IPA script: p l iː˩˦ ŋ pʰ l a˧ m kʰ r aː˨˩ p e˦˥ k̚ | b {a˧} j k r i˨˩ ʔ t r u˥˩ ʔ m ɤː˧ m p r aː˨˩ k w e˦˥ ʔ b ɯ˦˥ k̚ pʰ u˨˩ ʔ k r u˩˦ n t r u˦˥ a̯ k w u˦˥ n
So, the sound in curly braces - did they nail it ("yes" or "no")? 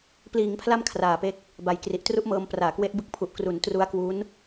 no